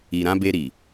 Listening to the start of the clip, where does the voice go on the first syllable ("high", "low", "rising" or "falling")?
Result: low